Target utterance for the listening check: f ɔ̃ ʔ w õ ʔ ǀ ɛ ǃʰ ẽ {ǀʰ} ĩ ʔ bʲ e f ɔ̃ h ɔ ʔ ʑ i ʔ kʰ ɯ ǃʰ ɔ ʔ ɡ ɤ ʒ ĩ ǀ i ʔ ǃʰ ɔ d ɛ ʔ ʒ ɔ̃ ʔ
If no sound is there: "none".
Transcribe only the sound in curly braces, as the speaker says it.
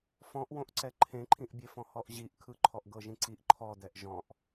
ǃʰ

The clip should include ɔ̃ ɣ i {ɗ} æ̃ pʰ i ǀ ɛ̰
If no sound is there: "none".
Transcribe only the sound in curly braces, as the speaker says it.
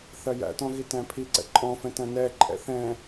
t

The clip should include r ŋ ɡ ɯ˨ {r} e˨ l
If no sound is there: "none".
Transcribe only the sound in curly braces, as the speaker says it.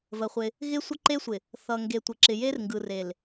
r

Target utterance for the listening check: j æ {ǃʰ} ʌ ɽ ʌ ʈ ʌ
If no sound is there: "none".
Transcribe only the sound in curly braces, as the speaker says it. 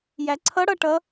ǀʰ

